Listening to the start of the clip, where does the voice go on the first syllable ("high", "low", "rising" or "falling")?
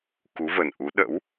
rising